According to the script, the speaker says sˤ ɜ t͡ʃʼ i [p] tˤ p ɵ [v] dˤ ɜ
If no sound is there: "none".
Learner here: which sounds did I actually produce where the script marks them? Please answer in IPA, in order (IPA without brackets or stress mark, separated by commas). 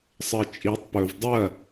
none, v